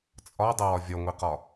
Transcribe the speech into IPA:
t͡sʼɒdˤəwɒ vʲɒŋʷiqɒ

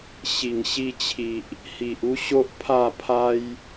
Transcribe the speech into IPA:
ɕi˨˩ŋɕi˧t͡ɕʰi˨ʔ | hi˨ʔu˦ɕo˦ʔ pʰa˥˧pʰa˦j

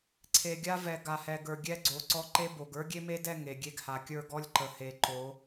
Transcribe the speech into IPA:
ǀʰe˨ɡʲa˦ vɛ˨ ɡa˨hɛ˨ɡə˞˨ ɡʲɛ˦ ɡ͡ǀo˨ǀɔ˦ ǃe˦bo˨ɡ ə˞˦ɡʲe˦me˦dɛ˦˨ ŋe˨ɡʲe˦ɡ ha˨kʲə˞˦˨ɡɔ˦lʲǃə˨ he˨ǃo˨˦

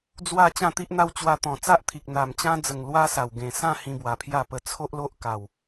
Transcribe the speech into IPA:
d͡zwa˥˧ t͡ɕã˥˧t̪i˦ʔn̪a˦w t͡ɕwa˧t̪ɔ̃˨˩ t͡sa˦ʔt̪ʰi˨k̚ n̪a˨˩mt͡ɕã˦d͡zə˨˩ŋ lwa˦sa˨˩w ɡẽ˨˩ sã˥˧ hĩ˧bwa˨˩pʰja˥˧pə˧ t͡sʰo˦ʔlo˦ʔ ka˨˩w

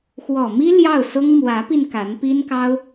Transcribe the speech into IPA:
xwɔ˨˩mi˥ ljɑ˥˩ʊ̯sʊ˥ŋ mwä˧˥pi˧n ka˧˥npi˥nkɑ˥ʊ̯

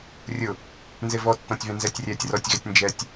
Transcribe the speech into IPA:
rʲʊ | nzevɔtːɔ̃tʲvɛ̃ nzɛtʲrʲɛtʲ rɔtʲɣɛtʲ nd͡ʒɛtʲ

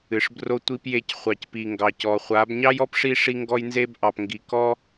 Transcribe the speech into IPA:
ɨ˨ʂbro˧tʷi˧p je˧c χʷɑ˨cpi˨ ŋɡɑ˨cɔ˨χʷa˨˦b ɲɑ˦jɔ˦pʂi˧ ʂi˧ ŋɡɔ˦jnze˦b ʔɑ˨pŋɡi˨kɔ˦

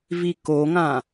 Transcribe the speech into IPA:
vikoŋã

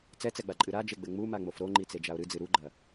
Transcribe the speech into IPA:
t͡sɛt͡sɛɡ͡baǃʼɨ ɾad͡ʒeɡ͡bɘ ŋ͡mumaŋ͡mof ɾoŋ͡ǃit͡sed͡ʒao̯ ɾɨd͡zɨ ɾuɡ͡ǃɐ

